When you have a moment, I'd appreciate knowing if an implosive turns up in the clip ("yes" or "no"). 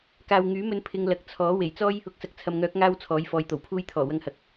no